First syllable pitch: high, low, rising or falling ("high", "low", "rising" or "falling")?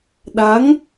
rising